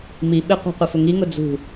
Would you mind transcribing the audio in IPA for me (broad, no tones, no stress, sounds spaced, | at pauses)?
m i ɓ ɪ qʷ ɑ̤ qʷ ʌ f ʊ ŋ i ŋ ʊ d͡z ṳ